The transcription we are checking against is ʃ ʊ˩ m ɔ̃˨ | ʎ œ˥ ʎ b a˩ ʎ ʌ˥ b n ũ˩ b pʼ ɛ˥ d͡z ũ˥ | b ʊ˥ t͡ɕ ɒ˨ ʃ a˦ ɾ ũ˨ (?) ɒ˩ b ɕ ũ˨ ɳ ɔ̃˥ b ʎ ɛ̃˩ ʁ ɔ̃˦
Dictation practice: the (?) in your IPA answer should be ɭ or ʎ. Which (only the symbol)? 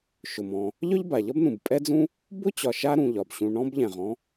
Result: ʎ